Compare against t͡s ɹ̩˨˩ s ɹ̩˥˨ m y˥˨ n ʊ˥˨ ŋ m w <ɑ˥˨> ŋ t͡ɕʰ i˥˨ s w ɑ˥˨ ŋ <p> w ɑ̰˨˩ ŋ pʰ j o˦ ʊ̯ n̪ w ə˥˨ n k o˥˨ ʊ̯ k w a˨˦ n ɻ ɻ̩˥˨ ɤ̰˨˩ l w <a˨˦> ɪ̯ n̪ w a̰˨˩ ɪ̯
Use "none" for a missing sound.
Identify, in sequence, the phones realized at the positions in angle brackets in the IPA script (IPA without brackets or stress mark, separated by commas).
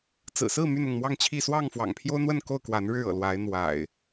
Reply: ɑ˥˨, f, a˨˦